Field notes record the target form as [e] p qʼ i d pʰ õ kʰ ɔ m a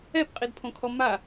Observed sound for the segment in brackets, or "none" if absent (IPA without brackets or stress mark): ɛ